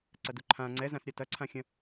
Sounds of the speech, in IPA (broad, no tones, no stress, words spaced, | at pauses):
ǀɐduǃʰã ŋ͡ǀɛzãs ɾʲatɐǀʰãxʲɐ̃